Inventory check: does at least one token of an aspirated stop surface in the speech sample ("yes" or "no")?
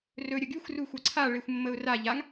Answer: yes